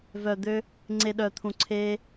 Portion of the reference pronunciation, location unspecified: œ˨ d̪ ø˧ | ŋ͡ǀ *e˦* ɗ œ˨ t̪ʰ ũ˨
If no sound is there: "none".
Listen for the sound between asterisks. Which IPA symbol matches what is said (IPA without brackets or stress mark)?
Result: e˨